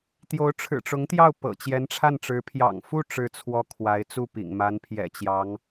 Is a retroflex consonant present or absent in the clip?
present